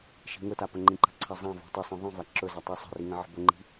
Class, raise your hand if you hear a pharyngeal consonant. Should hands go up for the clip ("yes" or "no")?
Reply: yes